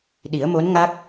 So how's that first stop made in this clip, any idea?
implosive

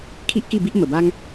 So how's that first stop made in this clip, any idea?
aspirated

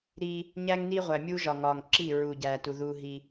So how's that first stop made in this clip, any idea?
click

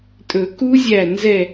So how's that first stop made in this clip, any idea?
ejective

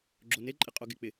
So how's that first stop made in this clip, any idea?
click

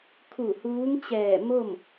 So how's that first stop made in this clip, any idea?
aspirated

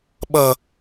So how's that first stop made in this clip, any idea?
implosive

